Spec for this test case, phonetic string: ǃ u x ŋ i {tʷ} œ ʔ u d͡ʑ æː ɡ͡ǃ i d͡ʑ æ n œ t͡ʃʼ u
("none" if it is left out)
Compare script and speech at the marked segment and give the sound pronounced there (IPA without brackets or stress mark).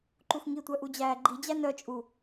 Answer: tʷ